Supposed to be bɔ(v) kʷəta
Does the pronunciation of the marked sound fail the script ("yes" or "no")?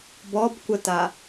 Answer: yes